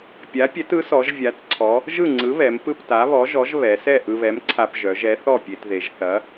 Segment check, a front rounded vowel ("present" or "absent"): present